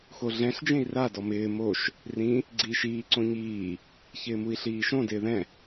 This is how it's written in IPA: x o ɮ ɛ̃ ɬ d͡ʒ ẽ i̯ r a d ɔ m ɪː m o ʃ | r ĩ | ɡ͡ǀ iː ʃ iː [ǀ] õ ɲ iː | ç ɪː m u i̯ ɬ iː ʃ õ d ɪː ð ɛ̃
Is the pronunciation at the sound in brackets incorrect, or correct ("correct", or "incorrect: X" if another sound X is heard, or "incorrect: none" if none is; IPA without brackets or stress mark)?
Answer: correct